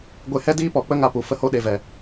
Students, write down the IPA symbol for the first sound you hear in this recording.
ɡʷ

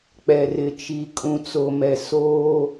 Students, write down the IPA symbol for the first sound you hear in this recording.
k͡p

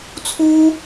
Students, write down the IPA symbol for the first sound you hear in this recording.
t͡sʰ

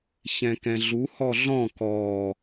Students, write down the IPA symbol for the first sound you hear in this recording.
ç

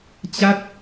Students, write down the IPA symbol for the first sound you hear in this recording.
t͡ɕ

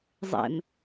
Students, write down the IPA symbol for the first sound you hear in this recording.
zˤ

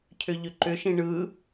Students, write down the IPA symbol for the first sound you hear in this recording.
cʰ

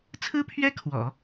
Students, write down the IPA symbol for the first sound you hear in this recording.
t͡sʰ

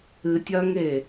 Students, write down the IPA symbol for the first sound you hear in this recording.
ɨ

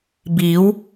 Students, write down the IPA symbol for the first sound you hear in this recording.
b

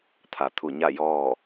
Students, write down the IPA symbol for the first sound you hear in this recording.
t̪ʰ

